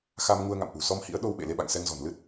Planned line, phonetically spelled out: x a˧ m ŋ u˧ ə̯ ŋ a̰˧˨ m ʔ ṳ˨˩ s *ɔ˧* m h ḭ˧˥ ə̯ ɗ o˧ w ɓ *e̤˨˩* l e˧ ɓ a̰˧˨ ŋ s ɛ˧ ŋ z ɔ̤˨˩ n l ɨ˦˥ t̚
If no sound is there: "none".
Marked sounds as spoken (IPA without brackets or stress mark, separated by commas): ɔ˧, ḛ˧˨